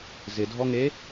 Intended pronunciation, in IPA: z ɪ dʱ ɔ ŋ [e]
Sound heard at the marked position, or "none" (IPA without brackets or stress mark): e